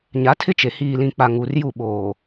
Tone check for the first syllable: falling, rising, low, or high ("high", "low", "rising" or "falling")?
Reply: rising